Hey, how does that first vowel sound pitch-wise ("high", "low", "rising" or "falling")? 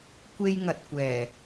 high